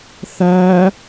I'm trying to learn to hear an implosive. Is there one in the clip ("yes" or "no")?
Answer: no